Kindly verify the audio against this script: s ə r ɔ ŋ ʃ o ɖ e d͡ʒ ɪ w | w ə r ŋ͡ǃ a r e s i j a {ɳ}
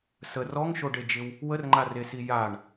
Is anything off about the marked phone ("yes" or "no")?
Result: no